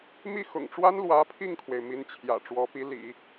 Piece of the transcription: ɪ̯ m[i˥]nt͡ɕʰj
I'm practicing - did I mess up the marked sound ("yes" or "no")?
yes